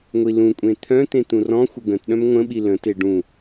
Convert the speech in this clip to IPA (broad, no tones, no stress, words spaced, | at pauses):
ŋʷilũkʷʼẽ t̪ʰœ̃t̪ẽ t̪ũrɔ̃xʷə ɡə̃tɗœ̃m ŋʷə̃ɓi lə̃te ɖũ